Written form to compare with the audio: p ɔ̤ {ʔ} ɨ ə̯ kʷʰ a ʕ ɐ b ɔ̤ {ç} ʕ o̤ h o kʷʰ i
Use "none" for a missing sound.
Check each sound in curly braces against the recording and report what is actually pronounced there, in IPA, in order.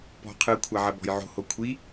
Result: qʰ, j

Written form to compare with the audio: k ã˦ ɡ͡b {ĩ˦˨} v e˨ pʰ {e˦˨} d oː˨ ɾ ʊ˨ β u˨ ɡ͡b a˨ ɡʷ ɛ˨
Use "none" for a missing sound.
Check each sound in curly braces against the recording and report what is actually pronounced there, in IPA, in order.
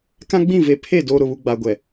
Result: ĩ˦˨, e˦˨

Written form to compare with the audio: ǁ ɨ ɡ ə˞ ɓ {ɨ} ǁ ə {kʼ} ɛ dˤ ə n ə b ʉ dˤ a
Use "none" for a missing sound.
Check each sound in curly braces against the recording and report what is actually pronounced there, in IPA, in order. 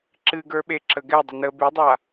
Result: e, ɡ

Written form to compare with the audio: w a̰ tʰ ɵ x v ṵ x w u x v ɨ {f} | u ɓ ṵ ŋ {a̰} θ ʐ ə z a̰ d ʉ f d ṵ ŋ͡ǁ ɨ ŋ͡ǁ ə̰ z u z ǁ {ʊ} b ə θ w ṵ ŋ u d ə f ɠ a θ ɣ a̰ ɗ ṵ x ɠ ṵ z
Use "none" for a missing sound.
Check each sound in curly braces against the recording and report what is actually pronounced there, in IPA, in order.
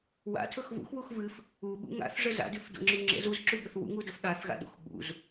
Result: f, a̰, ʉ

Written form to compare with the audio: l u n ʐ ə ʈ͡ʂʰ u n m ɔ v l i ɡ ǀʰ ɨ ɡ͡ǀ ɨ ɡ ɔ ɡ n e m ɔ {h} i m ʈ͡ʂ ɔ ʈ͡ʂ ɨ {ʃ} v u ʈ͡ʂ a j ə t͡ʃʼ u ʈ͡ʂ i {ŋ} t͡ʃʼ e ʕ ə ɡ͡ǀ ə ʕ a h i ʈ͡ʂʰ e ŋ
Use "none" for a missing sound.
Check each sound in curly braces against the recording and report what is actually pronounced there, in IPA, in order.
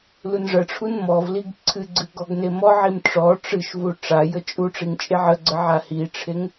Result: ʕ, ʃ, ŋ

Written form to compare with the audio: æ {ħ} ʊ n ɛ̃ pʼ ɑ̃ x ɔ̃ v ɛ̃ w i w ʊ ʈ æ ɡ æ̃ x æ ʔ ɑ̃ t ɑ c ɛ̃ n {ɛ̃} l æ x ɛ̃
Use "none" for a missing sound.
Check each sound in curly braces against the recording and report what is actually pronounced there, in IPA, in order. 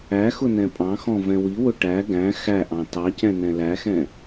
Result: x, ɛ̃

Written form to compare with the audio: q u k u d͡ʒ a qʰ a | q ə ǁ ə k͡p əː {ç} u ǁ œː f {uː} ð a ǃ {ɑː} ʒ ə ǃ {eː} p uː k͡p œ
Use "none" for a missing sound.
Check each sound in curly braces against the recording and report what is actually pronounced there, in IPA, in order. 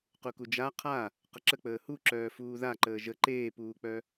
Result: h, uː, əː, eː

